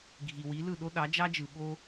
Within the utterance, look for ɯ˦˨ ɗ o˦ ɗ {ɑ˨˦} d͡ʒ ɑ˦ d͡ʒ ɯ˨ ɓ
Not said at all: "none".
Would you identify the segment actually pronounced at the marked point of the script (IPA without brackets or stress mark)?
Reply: ɑ˨˦